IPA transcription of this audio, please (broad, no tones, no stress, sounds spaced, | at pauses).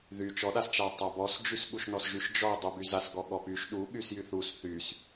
ð y t͡ʃ ɔ ɗ a s t͡ʃ a tˤ a b ɔ s d͡ʒ y s ɠ u ʃ n ɔ s ʒ y ʃ d͡ʒ ɔ dˤ u b y z a s ɡ ɔ ɠ ɔ p y ʃ ɗ u ɠ y s j y θ u s θ y s